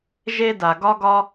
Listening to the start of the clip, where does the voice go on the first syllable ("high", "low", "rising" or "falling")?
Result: high